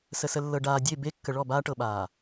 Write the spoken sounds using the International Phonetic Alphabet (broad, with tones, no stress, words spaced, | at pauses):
sə˨sə˨lːɤ˨ ɖaː˨dʲe˦˨ be˦ kːə˨ɭɔ˦˨ baː˦ʈɤ˨ɓaː˨